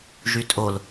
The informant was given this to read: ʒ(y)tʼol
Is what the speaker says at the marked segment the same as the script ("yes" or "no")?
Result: yes